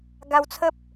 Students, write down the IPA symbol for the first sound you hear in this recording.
ɡ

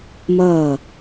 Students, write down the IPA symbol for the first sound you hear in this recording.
m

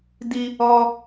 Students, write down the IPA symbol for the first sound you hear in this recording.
d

